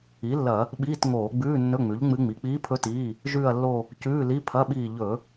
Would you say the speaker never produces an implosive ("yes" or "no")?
no